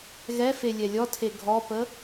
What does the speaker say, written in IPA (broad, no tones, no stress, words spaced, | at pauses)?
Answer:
ɣɛfe lʲɛlʲɔtʰe ɡʱɔpə